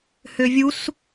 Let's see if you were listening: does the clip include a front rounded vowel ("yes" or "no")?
yes